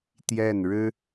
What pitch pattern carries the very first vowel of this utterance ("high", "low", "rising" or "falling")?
falling